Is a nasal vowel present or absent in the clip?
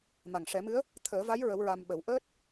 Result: absent